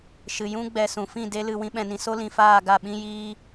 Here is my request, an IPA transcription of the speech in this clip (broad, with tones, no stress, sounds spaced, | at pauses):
ʃ ɨ˨ j ũ˧ ɡ͡b ɛ˨ s ũ˨ f ĩ˦˨ d e˦ l ɨ˧ w ĩ˦ ɓ ɛ̃˧ n ĩ˧ s o˦ l ĩ˨ f aː˦˨ ɡ a˦˨ ɓ ĩ˦ j iː˦